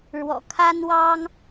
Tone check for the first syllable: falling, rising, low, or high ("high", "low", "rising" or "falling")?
low